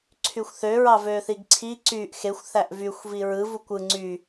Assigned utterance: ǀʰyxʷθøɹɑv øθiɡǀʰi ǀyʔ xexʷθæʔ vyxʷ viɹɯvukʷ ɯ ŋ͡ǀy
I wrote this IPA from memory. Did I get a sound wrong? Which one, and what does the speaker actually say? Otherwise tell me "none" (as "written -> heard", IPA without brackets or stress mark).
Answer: none